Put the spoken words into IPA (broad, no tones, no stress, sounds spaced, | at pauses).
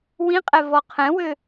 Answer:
w ĩ qʼ ɛ v ɔ qʰ ɛ̃ w ø